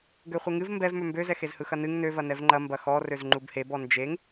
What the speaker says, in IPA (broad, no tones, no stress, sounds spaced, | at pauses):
ɡ ø χʷ e ŋ ɨ v m b ɛ v m ø m b ø z ɛ x e z h ɯ x ɐ n ɨ ŋ n ø v ɐ n ɛ v ŋ͡ǃ ɐ m b ɐ x ɔ r ø z ŋ͡ǃ u b h e b ɔ n d͡ʒ e ŋ